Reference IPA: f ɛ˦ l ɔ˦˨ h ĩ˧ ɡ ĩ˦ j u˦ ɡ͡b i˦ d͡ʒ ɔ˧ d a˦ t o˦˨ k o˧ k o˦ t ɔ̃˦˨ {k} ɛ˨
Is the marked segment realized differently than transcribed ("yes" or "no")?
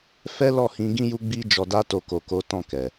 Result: no